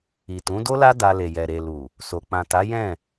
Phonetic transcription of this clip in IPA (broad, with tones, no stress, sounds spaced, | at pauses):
i˨ t ũ˨˦ d o˦ l a˦ d a˧ l e˨ j ɛ˨ ɾ e˨ l u˨ | s o˨ k͡p ã˨ t a˨˦ j ɛ̃˦˨